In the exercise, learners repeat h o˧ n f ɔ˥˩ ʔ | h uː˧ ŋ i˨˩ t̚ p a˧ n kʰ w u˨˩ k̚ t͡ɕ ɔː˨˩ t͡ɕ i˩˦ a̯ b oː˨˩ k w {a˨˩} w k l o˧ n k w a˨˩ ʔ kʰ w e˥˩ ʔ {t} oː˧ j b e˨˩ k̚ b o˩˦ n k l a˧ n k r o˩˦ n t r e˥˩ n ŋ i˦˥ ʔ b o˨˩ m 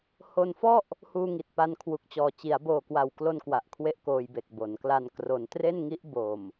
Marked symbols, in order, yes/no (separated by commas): yes, no